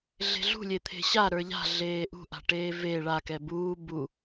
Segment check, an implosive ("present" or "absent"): absent